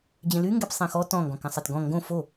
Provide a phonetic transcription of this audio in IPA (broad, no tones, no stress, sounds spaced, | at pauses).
d͡ʑ ẽ l y ŋ ɡ ɛ p sˤ ẽ x ɔ t ɔ̃ ŋ ɡ ɔ̃ k ã sˤ ɛ t ɡ ɔ̃ ŋ ɡ õ f o